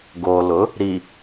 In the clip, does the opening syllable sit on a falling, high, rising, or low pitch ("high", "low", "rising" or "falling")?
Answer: low